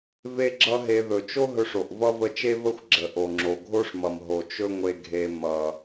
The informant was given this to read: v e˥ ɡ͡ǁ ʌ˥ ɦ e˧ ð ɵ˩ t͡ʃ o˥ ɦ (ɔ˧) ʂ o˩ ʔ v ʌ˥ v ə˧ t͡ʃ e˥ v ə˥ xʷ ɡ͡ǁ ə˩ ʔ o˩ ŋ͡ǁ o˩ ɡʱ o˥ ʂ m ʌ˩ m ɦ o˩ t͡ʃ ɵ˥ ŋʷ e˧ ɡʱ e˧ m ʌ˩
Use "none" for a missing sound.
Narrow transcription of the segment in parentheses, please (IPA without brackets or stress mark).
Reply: ɵ˧